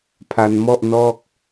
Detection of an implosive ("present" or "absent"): absent